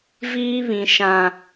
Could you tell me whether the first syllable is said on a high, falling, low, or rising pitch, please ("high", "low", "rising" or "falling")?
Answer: high